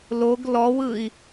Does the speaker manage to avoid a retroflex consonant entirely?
yes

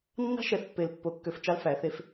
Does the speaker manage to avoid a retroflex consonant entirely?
yes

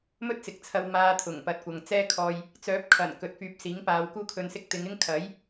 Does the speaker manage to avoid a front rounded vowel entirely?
no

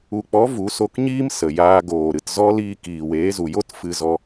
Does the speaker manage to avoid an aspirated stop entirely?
yes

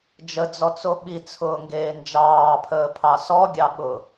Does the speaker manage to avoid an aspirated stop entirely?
no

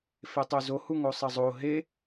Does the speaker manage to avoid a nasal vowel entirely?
yes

